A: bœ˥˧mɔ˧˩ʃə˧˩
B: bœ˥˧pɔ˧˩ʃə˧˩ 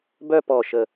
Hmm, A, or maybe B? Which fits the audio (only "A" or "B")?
B